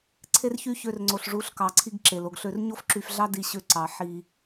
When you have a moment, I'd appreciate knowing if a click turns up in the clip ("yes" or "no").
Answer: yes